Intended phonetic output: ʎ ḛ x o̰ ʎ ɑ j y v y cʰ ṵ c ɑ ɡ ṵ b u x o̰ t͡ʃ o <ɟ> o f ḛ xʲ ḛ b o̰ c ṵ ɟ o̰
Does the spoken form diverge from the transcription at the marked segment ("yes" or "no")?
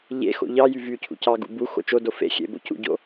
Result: yes